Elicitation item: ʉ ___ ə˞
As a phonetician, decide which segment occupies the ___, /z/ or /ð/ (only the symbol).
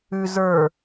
z